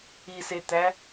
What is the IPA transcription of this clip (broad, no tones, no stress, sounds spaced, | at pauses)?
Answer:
i s e t̪ æ